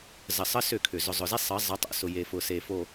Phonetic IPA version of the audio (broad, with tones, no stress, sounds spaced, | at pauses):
z ə˨ sˤ ə˦ s ʏ˦˨ kʰ ʏ˨ z ʊ˨ zˤ ʊ˨ z e˦ sˤ ə˨˦ zˤ ə˨˦ tˤ o̰˨ s ʊ˨ j e˨ f ʊ˨ s e˨ f o˨